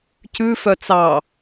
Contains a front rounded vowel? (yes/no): yes